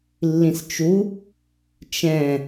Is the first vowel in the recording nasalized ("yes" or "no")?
yes